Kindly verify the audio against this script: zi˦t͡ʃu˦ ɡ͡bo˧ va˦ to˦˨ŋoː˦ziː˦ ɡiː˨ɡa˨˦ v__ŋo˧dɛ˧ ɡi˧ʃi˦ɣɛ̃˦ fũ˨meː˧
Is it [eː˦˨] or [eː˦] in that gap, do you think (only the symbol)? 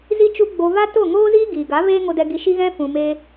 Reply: eː˦